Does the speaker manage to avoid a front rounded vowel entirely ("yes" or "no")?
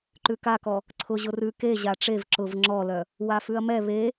no